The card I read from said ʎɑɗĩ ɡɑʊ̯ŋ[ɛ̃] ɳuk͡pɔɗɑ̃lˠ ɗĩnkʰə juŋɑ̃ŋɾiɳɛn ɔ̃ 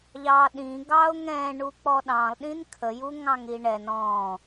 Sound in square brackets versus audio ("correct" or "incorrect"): correct